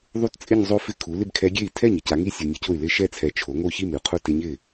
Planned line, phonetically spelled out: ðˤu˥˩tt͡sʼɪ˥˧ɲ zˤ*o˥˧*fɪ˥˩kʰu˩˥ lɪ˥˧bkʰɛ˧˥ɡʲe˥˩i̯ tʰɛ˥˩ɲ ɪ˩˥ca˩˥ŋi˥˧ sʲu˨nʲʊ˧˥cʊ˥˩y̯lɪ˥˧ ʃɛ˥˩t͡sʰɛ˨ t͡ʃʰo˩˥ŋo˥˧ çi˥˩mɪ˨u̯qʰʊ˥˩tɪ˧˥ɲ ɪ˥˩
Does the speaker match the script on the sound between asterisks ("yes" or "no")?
yes